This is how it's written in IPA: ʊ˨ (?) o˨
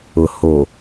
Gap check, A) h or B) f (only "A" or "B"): A